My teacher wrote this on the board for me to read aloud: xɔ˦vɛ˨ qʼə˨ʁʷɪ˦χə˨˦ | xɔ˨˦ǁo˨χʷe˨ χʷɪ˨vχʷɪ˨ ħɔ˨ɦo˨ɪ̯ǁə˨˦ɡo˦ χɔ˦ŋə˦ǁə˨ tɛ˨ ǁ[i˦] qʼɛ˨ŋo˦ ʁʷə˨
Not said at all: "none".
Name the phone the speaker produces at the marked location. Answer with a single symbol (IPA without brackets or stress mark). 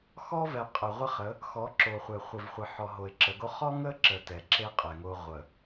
e˦